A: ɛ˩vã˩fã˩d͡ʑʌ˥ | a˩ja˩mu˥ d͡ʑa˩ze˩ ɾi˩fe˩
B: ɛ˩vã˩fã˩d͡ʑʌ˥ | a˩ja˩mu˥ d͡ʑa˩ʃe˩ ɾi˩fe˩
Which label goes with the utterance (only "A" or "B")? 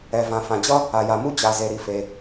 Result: A